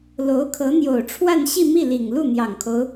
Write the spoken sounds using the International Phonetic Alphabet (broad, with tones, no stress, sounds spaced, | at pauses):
l o˧˥ ʊ̯ kʰ ɤ˧˥ n̪ j o˨˩ ʊ̯ ʈ͡ʂʰ w a˥˧ n ɕ i˥˧ m i˥˩ l i˨˩ ŋ l u˥˩ n̪ j ɑ˨˩ ŋ kʰ o˦ ʊ̯